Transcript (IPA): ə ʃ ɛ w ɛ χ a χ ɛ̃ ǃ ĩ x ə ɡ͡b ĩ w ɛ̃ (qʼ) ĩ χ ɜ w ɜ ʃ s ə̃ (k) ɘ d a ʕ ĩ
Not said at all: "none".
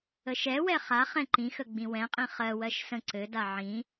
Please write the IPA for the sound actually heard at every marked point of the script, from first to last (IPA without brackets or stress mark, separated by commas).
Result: qʼ, ǀ